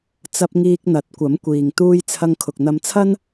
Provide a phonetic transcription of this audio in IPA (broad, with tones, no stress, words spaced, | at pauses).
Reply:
t͡sɐ˧p̚ŋiː˧k̚n̪ɐ˨˥t̚ kʷɐ˨˥mkʷiː˨ŋ t̪uː˧jt͡sʰɐ˧ŋ kʰʊ˨k̚n̪ɐ˧mt͡sʰɐ˥n